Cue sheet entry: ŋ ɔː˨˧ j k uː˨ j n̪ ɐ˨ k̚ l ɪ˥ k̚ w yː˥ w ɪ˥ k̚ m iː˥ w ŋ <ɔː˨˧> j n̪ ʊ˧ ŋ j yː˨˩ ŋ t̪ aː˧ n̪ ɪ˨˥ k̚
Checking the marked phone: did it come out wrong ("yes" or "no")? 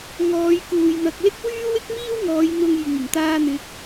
no